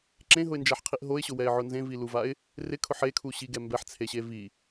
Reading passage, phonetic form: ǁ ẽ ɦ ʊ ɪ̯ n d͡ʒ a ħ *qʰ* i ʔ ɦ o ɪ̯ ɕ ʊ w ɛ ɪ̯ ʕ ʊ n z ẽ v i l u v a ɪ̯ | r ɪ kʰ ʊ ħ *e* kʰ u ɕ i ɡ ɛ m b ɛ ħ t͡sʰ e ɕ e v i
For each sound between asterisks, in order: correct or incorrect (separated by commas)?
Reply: correct, correct